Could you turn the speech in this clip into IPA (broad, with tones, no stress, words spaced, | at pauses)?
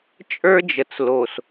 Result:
t͡ʃʼə˞˦ d͡ʒə˨t͡slo˨s